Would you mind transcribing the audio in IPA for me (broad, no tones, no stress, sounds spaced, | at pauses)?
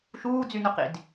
ʃ uː d͡z y n ʊ q ḭ d